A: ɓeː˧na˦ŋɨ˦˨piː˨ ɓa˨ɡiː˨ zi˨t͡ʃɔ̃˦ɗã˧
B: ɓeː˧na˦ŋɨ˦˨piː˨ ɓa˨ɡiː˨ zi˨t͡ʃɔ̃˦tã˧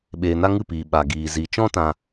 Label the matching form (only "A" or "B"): B